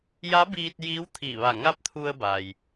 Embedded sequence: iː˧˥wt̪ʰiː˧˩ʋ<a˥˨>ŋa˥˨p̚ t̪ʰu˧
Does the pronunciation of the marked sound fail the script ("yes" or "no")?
yes